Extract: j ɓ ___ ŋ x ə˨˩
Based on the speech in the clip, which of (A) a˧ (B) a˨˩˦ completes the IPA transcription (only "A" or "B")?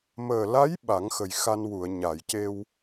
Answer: B